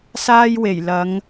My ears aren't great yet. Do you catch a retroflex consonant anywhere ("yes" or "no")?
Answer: no